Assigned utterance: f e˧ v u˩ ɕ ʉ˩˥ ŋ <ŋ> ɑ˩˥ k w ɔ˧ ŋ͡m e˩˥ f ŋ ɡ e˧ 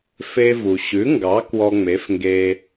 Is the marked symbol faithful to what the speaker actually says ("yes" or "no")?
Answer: no